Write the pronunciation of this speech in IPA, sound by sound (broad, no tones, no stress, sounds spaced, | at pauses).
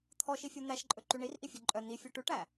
t̪ʰ ɔ ʃ i fʲ u n̪ æ ʃ ǃʼ ɵ ǃ y ɳ i r ʔ i fʲ ɵ ǃʼ œ n̪ i fʲ o ʈ ʉ ʈ æ